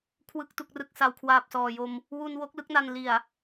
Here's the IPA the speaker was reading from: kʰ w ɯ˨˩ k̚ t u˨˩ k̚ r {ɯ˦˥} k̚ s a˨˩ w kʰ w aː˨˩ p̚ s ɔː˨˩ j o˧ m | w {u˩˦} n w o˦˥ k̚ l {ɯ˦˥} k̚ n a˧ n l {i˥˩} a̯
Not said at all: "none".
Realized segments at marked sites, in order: ɯ˨˩, u˧, ɯ˦˥, i˨˩

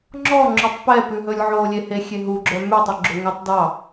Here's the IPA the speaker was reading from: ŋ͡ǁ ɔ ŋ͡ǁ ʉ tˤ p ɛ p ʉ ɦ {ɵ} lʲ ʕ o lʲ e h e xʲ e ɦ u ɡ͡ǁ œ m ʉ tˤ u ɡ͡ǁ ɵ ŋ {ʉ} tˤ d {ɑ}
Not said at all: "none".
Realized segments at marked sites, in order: ɵ, ʉ, ɑ

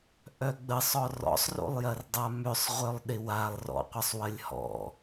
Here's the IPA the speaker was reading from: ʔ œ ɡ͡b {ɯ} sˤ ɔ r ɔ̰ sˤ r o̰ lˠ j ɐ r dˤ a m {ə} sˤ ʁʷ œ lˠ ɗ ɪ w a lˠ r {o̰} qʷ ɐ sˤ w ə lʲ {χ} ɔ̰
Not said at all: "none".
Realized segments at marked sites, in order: ə, ʏ, ɔ̰, h

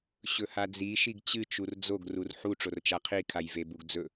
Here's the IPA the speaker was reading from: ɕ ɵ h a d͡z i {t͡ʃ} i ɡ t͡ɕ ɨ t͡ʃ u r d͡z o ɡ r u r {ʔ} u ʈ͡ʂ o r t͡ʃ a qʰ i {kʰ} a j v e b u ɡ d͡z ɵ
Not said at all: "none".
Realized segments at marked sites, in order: ʃ, ħ, kʰ

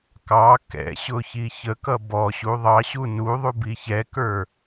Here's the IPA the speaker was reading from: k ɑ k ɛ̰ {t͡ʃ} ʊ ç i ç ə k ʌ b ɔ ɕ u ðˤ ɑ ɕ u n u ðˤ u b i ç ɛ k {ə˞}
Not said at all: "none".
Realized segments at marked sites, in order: ɕ, ə˞

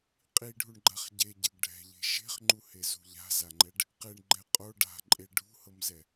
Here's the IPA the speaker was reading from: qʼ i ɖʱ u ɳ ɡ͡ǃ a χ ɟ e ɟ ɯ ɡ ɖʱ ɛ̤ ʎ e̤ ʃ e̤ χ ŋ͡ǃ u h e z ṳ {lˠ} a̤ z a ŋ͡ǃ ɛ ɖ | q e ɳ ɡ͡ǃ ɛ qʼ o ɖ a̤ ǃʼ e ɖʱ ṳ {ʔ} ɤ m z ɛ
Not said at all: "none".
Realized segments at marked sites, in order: ʎ, h

